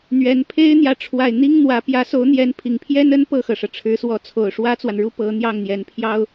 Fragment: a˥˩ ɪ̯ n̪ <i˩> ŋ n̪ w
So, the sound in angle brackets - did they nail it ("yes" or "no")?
no